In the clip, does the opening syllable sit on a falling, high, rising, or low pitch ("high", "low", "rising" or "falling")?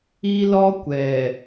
high